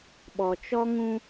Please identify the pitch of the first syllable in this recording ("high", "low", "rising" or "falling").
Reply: low